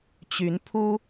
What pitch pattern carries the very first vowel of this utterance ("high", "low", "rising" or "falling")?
rising